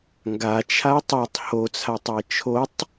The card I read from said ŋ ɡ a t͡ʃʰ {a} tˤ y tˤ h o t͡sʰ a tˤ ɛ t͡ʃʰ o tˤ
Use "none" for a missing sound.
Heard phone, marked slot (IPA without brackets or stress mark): a